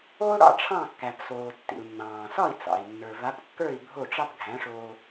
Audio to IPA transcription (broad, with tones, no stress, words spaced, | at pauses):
o˥ ɽɑ̰˥ʈ͡ʂʰɑ̃˥˩kːæ˩psoː˩ tːḭ˩u̯nːɑ̃ː˩sɒ˥˩i̯t͡sɑ̰˩i̯ nːə˞˩va˩˥pkːə˞˥˩i̯ bʱo˥˩ʈ͡ʂɑ˥p ɡʱæ̃˩˥ʂoː˧